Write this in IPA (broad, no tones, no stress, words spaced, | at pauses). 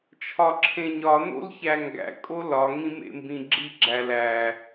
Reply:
t͡ʃʰɒǁʰẽɲɒno̰l çæŋɡæ̰kʼo lɒŋĩ mḛmbĩɡ͡ǁiɡ͡ǁæ læ